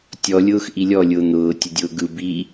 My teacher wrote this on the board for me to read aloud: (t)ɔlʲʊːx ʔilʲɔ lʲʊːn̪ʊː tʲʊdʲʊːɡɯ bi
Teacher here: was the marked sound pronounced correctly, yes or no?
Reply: no